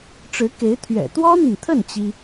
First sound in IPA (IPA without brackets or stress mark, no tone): ʈ͡ʂ